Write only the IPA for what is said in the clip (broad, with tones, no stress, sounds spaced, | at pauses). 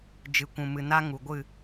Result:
d͡ʒ ɨ˨ kʷ ũ˨ m ɨ˨ n a˦ ŋ u˨ ɡʷ ɨ˦˨